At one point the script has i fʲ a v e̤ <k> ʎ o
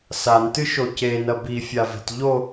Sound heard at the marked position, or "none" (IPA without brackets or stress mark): t